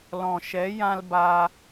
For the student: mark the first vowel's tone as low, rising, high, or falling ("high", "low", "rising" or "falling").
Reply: low